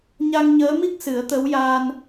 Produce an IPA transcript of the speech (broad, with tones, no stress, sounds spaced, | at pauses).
ɲ a˧ ŋ ɲ əː˧˥ m i˦˥ k̚ s ɨ˨˩˦ ə̯ t̪ ə˧˥ w j aː˧ n